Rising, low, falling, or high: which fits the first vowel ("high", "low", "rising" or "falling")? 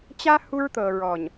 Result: high